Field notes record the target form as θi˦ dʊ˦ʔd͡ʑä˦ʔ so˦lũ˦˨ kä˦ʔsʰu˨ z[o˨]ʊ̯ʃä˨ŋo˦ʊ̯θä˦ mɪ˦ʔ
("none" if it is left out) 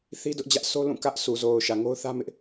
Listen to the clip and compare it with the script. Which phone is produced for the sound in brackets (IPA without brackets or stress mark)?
o˨